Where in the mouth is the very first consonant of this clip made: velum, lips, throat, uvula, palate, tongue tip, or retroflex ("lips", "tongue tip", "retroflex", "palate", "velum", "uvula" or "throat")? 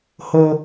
throat